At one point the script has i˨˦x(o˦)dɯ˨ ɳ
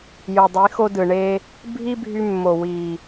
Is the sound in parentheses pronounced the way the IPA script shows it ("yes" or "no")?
yes